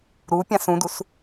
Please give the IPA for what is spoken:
ɾu pʲãsũdus

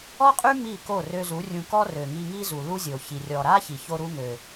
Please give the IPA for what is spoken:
ɔ˦qʼy˦ mi˦˨ko˦˨ rø˧zu˨˦ rʲũ˧kɔ˦ rø˨ŋi˧ŋi˦zu˨ lu˦zʲo˨çi˨ rʲɔ˨ɾa˦ çi˨ço˦ɾu˦ŋø˨

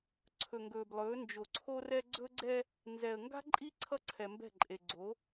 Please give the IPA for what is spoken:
ǀʰɵ˨ŋɡɵː˨blˠɵː˨˦ nd͡ʒo˨ǀʰo˦rɛ˦ ɡ͡ǀɵ˦ɡ͡ǀɛ˦ | nzɛ˨ə̯ ŋɡa̤˦ǃʼi˦ ǀʰʌ˦ǀʰɛ˨mbɛ̤˦˨ǃʼe˨ ɡ͡ǀo˨˦

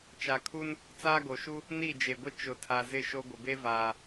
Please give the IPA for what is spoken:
t͡ʃa˨kʰu˦n | t͡saː˦ɡo˨ʃu˦ | ni˦˨d͡ʒe˨ɡʷɪ˦ t͡ʃʊ˨˦tʰa˨ zɪ˦˨ʃo˦ ɡʷɪ˨be˦vaː˨

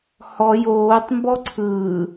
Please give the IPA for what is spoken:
hɔ joːtˤmbɔ ǀʰɯː

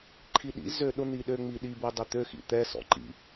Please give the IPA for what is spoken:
ǃʰiɗḭ zøɗʊ n̪iɗøŋ͡mi ɗibo dˤʊt̪ø xḭt̪ɛ sɔ̰ǃḭ

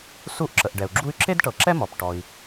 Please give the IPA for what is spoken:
su˦ʔǁə˩ʔɖɛ˩u̯ɡ͡ǁu˦y̯ ǁe˦dʈɤ˩ǁɛ˦ mɔ˩p ʈɔ˨i̯

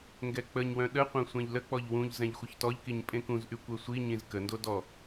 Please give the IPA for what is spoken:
ŋɡɛk͡pəɲwœ̃ ɗəqʷœ̃ sʷɛ̃ʎlək͡pɔʎ wũʎ zɛ̃ʎxʷəçtɔʎkiɲ pʼẽkũzʔy kʷœsʷiɲĩz kəndo dɔ

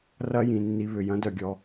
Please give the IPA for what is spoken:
rɐ˦jĩ˨nːi˧ βʏ˨jɐ̃˦dœ˨ɡʲɔ˧

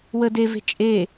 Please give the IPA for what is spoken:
wə deve̤ t͡ʃʼe

